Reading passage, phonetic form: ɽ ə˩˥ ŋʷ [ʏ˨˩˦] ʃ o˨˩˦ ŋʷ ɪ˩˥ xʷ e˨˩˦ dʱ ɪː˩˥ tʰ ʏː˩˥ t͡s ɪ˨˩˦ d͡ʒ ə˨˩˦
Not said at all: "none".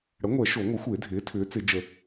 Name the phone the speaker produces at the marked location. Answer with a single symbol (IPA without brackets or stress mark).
ɛ˨˩˦